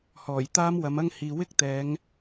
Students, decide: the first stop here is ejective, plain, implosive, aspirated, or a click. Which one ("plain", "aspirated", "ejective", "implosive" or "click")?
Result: plain